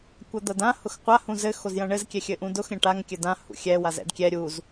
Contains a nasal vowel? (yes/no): yes